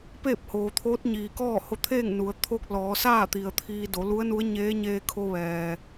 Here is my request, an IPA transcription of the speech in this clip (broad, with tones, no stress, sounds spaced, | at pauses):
p eː˥˨ p̚ h oː˩ t̪ʰ oː˧˥ t̚ ɲ iː˩ k ɔː˥˨ h o˧ t̪ʰ eː˥˨ ŋ n u˩˧ ə̯ t̪ʰ o˧ k̚ l ɔː˩˧ s aː˥˨ t̪ i˩ ə̯ t̪ʰ iː˧ d o˩˧ l u˧˥ ə̯ n u˧˥ ə̯ ɲ eː˧˥ ɲ eː˧ kʰ o˧ ʋ ɛː˩